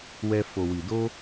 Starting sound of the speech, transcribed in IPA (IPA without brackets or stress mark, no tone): w